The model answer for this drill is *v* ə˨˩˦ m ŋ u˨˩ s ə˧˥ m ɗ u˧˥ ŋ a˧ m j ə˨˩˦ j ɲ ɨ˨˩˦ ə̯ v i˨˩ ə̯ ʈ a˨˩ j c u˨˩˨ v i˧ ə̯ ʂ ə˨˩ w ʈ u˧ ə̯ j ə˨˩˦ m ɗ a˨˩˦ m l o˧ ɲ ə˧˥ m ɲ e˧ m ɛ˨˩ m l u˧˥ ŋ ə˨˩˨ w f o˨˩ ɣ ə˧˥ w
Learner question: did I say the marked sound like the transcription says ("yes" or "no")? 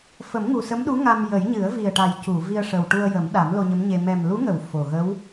no